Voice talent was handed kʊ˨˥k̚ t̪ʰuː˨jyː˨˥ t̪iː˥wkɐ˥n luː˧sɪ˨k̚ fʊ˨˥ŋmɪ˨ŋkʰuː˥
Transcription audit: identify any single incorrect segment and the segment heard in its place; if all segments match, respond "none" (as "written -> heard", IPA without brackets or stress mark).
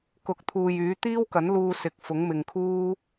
ɐ˥ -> ɐ˨˥